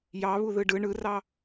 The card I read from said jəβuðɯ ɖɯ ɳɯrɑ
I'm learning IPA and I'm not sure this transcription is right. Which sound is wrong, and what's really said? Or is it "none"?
ə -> ɑ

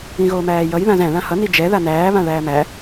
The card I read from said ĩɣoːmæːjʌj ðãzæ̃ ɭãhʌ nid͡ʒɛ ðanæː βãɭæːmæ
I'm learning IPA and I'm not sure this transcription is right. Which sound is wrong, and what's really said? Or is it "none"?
none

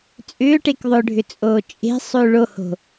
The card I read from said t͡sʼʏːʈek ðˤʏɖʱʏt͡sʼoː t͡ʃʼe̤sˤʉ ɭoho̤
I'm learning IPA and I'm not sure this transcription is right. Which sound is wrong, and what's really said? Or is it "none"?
none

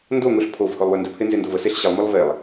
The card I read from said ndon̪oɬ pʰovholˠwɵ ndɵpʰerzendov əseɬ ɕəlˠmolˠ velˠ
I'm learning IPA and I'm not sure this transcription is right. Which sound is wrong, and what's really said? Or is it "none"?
r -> n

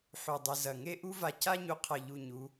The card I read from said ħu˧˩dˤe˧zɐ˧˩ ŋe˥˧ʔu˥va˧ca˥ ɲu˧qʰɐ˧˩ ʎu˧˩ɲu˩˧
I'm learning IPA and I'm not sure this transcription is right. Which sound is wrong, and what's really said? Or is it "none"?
none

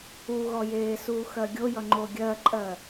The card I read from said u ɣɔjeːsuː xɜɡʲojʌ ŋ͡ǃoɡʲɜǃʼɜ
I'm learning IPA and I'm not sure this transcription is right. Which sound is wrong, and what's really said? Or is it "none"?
none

